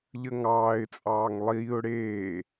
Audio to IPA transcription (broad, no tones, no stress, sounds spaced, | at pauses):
ʎ ə ŋ ɑː ɪ̯ t͡sʼ ɑː ŋ lˠ iː ʊ̯ ɽ eː